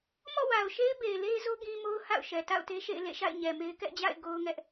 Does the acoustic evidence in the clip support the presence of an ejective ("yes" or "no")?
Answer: no